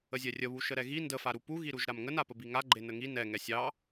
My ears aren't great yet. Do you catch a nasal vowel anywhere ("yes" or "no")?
no